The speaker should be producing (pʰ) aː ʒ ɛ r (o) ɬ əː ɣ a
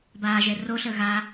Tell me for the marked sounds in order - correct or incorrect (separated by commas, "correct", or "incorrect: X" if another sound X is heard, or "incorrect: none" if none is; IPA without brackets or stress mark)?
incorrect: b, correct